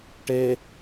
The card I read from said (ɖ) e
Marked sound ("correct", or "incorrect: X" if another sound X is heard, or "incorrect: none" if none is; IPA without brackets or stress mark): incorrect: ʈ